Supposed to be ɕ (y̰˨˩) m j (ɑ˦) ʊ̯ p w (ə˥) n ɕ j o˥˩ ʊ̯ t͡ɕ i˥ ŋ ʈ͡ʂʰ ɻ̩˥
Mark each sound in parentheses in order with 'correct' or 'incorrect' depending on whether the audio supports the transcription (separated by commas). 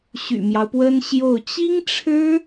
correct, correct, correct